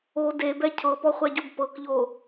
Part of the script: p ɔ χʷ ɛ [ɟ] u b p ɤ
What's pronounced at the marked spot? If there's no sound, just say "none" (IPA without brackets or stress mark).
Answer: ɟ